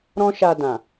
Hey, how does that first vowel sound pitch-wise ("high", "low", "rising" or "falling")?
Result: high